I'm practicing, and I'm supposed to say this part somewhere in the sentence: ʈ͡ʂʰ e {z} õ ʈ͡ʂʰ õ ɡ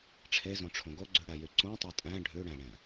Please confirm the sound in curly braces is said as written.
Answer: yes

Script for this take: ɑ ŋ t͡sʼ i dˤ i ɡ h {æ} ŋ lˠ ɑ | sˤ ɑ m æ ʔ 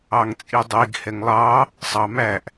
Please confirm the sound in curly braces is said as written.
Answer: no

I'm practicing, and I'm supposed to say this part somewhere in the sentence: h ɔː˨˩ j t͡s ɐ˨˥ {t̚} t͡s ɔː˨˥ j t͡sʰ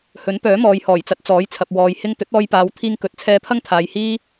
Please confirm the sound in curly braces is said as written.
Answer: yes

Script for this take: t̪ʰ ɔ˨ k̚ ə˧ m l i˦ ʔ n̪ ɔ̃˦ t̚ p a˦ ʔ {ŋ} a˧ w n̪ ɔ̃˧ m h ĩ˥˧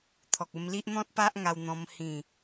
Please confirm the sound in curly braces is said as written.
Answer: yes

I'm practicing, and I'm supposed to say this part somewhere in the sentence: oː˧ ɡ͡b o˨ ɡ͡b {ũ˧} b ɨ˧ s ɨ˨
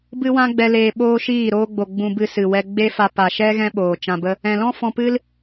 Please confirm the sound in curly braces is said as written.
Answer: yes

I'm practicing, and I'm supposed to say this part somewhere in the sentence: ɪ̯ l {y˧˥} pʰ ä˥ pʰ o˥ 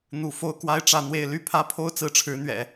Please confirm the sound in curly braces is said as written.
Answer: no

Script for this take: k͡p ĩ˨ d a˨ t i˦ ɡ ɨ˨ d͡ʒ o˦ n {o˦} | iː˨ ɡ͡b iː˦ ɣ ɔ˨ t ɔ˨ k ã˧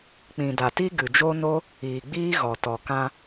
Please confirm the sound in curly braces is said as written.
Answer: yes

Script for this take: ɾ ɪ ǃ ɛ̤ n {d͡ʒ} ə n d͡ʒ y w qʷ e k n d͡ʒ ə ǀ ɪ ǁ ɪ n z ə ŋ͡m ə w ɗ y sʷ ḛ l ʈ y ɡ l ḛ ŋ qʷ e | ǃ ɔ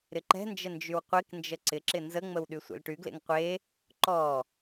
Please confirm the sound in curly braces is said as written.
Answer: yes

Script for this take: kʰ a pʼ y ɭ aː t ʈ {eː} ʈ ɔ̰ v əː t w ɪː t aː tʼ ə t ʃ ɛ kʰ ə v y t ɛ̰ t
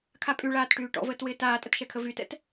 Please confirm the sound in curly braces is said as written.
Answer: no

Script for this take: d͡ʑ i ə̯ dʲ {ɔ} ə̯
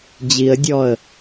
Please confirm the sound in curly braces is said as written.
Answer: yes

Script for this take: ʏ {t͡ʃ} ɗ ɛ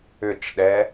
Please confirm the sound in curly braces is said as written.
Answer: yes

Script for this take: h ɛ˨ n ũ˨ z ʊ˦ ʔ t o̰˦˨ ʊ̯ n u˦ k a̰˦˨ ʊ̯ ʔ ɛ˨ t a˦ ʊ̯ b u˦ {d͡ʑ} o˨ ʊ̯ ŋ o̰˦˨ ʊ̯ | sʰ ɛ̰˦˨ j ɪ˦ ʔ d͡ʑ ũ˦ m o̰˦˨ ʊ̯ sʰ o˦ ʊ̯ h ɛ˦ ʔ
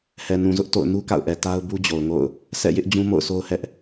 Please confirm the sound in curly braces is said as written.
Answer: yes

